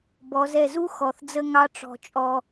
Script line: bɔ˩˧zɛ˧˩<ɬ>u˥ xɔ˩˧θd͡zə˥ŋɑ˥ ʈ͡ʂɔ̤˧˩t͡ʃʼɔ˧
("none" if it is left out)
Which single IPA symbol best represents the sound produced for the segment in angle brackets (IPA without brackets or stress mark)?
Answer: z